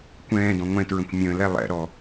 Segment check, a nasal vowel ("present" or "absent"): present